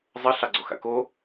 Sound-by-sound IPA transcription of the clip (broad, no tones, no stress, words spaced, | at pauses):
zˤə ɬɑɡ͡ǀoxa̰ko